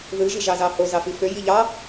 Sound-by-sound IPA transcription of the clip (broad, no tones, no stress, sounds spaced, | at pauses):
ð ɯ ʒ i ʒ ɑ z ɑ h o z ɑ f i f ø j i ʎ ɑ